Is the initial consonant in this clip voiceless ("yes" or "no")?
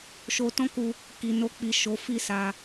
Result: yes